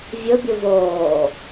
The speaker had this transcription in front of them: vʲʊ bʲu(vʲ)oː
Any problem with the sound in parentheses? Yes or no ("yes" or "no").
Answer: yes